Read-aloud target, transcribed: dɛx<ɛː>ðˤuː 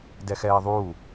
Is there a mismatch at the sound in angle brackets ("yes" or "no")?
no